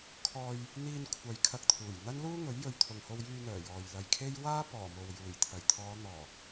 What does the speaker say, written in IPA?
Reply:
kʰɔː˧j | n̪iː˧nkʷʰɐ˨j kʰɐ˧k̚t̪ʰuː˨˩j n̪ɐ˥nluː˥ŋɵ˨˥ɥ jɵ˨ɥt̪ʰʊ˨ŋho˧w jyː˧n̪œː˨˩ jɔː˨jlɐ˧jkʰe˥j waː˥pɔː˨˩ mo˨w juː˨˩jt̪ʰɐ˨˩jt̪ʰɔː˨˧ n̪ɔː˨˩

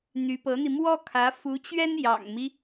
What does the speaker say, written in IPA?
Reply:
n̪y˧˥pɤ˧˥n̪i˧ mwɔ˥kʰä˧˥ fu˧˥t͡ɕɥɛ˥n jɑ̰˨˩ŋmi˦

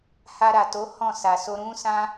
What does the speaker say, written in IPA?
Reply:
ha˧ɾa˨to˨˦ hɔ̃˦˨sa˨so˧ ɾũ˦sã˦

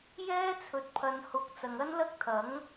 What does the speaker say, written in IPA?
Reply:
jɛː˥t͡sʰɵ˨˥t̚pʰɐ˨nhʊ˨˥k̚ t͡sɐ˨ŋɐ˥nlɐ˥k̚t̪ʰɐ˨˥ŋ

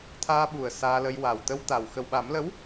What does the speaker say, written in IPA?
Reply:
t̪ʰaː˧ɓu˨˩ə̯ saː˧lə˧j wa˨˩wt̪ə˧wt̪a˨˩w xə˨˩wɓa˨˩˦mlə˧˥w

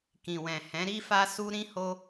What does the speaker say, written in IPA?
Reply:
kĩ˨wɛ̃˨hɛ̃˨˦ ɾi˦fa˦su˦ ɾĩ˦ ho˦

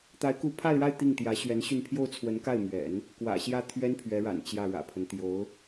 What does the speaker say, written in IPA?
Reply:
t̪a˧˥ɪ̯ku˧˥pʰa˥˧ɪ̯ɻa˥˧ɪ̯ t̪i˥˩ŋt̪jä˧˥ɕɥɛ˧˥nɕy˥˧n pʰjo˥˩ʊ̯t͡sʰwə˧˥nka˥˩ɪ̯ mɥɛ̰˨˩˦n | kwä̰˨˩ɕjä˥˩t̪ʰɥɛ˥n pʰɥɛ˧˥ɻa̰˨˩n t͡ɕjä˥˩ɻä̰˨˩pʰə˦n t̪jo˧˥ʊ̯

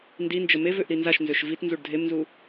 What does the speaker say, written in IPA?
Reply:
ndind͡ʒə mevøʔ ɾinzaʃnzøʃ vit nzuɖdʱemnzu

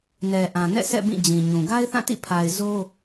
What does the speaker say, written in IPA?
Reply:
nɛ˨ʔã˨ nɛ̰˦˨sʰɛ̰˦˨ bĩ˦˨ d͡ʑĩ˨ɲũ˨ ɡa˦ɪ̯θã˦˨tḭ˦˨ pʰa˨ɪ̯zo˦

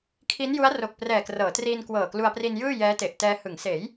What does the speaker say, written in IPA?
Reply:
kʰi˦˥nju˦˥a̯ro˨˩k̚ prɛː˨˩krɤː˩˦triː˧n kwɤː˨˩klu˧a̯pri˧njɯː˥˩ jɛː˦˥te˨˩ʔtɛː˧ hɯ˩˦ŋseː˩˦j

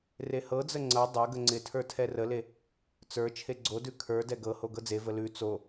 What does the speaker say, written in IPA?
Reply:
rehɤd͡zə ŋ͡ǀɤ dˤɤɡə ŋ͡ǀɪtʰə˞ tʰɛrəle | t͡sə˞ t͡ʃʰeɡ͡ǀodʉ kʰə˞ dɛɡɤho ɡɤd͡zevə lʉ t͡so

